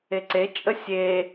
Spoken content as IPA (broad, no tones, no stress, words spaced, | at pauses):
eǀet͡ʃʼə sʲe